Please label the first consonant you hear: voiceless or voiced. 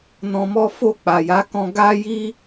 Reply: voiced